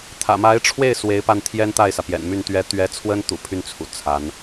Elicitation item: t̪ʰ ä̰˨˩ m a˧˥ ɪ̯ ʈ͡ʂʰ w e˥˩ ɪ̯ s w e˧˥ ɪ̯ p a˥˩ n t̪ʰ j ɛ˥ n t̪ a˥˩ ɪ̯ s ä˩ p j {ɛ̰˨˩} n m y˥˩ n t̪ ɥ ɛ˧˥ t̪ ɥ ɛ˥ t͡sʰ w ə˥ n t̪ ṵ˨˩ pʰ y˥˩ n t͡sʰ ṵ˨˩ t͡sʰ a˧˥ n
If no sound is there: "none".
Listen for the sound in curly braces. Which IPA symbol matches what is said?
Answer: ɛ̰˨˩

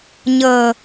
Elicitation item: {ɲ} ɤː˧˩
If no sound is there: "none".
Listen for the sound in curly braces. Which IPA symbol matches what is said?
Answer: ɲ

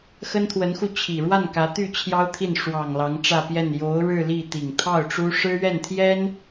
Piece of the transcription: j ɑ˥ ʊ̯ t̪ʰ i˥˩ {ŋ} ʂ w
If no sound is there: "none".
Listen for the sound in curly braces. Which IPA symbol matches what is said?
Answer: n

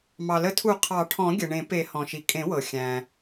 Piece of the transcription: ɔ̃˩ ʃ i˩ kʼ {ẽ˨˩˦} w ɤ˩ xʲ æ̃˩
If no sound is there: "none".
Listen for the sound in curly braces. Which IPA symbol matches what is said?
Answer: ẽ˨˩˦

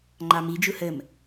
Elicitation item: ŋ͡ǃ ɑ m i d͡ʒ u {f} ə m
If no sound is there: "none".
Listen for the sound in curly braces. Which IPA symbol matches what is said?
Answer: h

